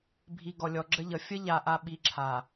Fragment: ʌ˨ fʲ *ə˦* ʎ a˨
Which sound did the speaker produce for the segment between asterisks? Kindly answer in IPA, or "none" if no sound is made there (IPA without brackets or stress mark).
ə˦